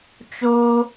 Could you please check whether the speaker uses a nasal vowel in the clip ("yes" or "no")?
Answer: no